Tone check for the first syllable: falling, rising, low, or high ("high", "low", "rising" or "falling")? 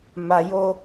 low